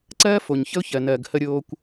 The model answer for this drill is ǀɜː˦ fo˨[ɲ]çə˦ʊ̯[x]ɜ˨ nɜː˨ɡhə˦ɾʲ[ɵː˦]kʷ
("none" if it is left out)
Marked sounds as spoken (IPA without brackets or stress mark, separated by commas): ɲ, ç, oː˦